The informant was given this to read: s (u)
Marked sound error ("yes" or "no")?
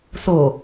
yes